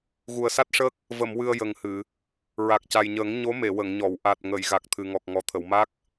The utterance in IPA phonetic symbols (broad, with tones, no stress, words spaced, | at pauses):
ɣu˨˩ə̯sa˦˥t̚ʂəː˦˥k̚ | və˨˩˨mwɨ˨˩ə̯ jə˨˩ŋhɨ˨˩˨ | ɹa˨˩k̚ca˨˩jɲəː˨˩˦ŋ ɲo˧˥me˨˩˨wə˨˩˨ŋɲɔ˨˩˨w ʔa˨˩t̚ŋə˨˩˨j ɣa˨˩k̚t̪ʰɨ˨˩ŋɔ˨˩k̚ ŋɔ˨˩t̪ʰə˨˩˨wma˦˥k̚